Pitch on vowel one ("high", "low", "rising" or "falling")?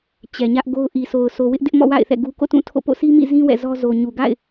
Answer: low